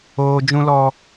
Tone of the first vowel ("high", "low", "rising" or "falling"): high